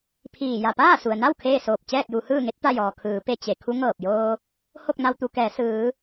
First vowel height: high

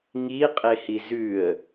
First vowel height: high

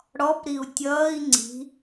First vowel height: mid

